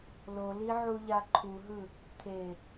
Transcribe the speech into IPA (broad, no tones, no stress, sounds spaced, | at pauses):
l o l i ʕ u ʎ a ǃʰ u ɦ ɯ | t̪ʰ e